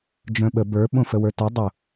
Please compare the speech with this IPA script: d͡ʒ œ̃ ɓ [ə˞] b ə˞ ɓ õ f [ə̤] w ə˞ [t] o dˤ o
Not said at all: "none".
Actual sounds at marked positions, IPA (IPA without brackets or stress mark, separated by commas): ə, ə, t